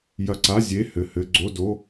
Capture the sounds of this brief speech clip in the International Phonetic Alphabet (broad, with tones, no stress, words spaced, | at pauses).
jɐ˧˩ǀa˧˥˧ zʲe˧˥˧hɘ˧˩hɘ˧˥˧ ɡ͡ǀo˧˥˧do˧˥˧